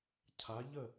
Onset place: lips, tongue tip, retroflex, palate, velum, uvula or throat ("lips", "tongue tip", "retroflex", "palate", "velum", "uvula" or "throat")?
palate